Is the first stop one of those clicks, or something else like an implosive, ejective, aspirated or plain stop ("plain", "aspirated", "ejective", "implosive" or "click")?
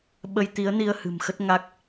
implosive